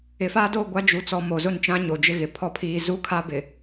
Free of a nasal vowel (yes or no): no